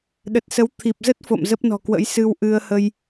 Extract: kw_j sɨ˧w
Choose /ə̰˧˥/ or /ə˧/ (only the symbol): ə̰˧˥